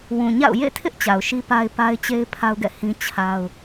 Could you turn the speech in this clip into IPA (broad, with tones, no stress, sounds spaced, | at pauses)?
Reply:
w ũ˨ ɲ a̰˦˨ ʊ̯ j ḛ˦˨ tʰ ɪ˦ ʔ t͡ɕ a˨ ʊ̯ ʃ i˦ p a˦ ɪ̯ p a˦ ɪ̯ t͡ɕ e˦ ɪ̯ pʰ a˦ ʊ̯ ɡ ɛ̰˦˨ h ĩ˦ t͡ɕʰ a˦ ʊ̯